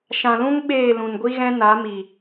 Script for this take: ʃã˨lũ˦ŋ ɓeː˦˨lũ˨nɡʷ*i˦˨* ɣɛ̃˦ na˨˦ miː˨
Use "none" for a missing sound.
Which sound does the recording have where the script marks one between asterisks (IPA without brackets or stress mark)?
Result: i˦